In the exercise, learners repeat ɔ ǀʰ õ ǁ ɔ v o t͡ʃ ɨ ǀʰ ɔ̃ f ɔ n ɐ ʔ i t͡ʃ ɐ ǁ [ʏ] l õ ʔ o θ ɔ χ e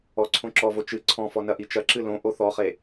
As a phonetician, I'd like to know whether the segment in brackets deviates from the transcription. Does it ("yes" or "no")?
yes